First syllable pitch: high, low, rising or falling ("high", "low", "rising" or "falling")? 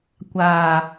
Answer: low